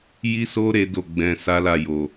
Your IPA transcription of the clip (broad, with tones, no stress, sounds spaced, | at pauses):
j i˦ s o˦ ɾ e˦ d o˦˨ ɡ͡b ɛ̃˧ s a˦ l a˦˨ j o˨